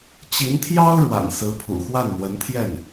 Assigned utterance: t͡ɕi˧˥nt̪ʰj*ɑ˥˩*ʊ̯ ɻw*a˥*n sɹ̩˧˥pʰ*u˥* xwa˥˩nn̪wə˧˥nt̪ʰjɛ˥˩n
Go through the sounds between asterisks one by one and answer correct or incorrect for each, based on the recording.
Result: incorrect: ɑ˥, incorrect: a̰˨˩, incorrect: ṵ˨˩

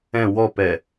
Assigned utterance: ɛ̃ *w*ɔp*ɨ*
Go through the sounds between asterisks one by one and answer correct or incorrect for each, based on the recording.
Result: correct, incorrect: ɛ

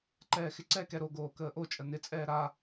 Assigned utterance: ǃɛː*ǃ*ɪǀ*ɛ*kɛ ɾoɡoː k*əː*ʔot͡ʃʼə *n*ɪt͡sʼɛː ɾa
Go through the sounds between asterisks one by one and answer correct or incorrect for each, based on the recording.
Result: incorrect: x, correct, correct, correct

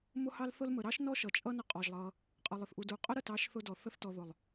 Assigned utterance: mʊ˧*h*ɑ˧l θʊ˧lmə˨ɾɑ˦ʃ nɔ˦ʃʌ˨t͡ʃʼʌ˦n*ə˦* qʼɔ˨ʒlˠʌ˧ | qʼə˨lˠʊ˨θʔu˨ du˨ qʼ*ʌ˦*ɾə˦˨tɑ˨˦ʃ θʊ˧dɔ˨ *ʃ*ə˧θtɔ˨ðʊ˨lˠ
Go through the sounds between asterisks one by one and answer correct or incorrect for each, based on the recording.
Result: correct, incorrect: ə˧, incorrect: ə˦, incorrect: θ

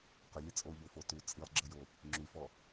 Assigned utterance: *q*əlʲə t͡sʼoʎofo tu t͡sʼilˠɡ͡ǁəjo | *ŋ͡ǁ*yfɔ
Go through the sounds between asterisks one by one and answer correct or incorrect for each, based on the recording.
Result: correct, correct

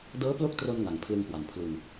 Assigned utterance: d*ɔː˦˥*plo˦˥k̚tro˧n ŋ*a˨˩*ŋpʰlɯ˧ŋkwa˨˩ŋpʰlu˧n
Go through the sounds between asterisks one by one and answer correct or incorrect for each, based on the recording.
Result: incorrect: ɤː˦˥, correct

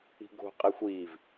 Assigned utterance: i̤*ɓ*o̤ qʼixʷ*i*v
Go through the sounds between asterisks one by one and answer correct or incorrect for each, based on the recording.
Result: incorrect: ɡ, incorrect: iː

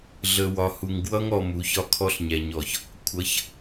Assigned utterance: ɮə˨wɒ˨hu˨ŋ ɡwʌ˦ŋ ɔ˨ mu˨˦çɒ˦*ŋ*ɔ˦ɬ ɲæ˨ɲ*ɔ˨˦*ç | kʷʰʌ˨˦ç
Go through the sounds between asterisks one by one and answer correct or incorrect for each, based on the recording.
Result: incorrect: kʰ, incorrect: ɔ˨

